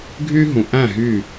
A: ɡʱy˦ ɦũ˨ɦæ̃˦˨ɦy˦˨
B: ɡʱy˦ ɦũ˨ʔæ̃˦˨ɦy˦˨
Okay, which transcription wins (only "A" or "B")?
B